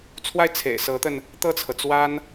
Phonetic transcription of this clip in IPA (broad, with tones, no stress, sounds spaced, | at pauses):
t͡sʰ w a˥˩ ɪ̯ t͡sʰ ḛ˨˩ ɪ̯ s ɤ˧˥ t̪ ə˧ n | t̪ ɤ˥˩ t͡sʰ ɤ˩ t͡s w a˥ n